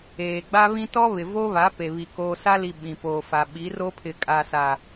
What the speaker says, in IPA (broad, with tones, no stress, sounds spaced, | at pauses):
eː˨ ɡ͡b a˦ β ĩ˦ t ɔ˦ β ɪ˨ v o˦ β a˨˦ p e˨ β i˨ k oː˦ s a˦ l i˨ ɓ ĩ˨ p oː˨ f a˨ ɓ i˨˦ r o˦ pʰ ɪ˨ kʼ a˨ s a˨